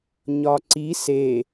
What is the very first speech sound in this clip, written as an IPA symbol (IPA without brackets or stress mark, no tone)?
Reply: ɲ